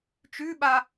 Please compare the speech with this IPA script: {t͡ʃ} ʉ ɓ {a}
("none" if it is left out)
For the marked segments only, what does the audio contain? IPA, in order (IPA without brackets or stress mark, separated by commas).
t͡ʃ, a